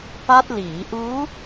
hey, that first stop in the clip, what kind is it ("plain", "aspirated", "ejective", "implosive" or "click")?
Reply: plain